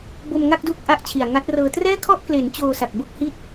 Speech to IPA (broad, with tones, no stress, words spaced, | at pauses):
bo˧mŋa˥˩k̚ duː˥˩k̚ʔa˥˩ʔt͡ɕʰi˨˩a̯ ŋa˦˥t̚rɤː˧ trɛː˥˩kʰɔ˥˩ʔkle˩˦n t͡ɕoː˧sa˨˩k̚ bo˥˩k̚hi˥˩t̚